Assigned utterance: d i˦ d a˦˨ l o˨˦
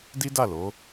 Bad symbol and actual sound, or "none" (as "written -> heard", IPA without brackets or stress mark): none